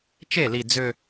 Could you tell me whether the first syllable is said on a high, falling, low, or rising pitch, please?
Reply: falling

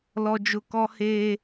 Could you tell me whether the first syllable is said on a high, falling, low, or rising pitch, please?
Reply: high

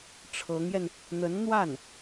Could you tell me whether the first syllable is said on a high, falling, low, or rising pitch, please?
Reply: rising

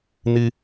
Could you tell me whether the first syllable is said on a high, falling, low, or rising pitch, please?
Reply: high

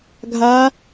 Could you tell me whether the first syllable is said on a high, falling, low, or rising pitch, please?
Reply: rising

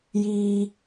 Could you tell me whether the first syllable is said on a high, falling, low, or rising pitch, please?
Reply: high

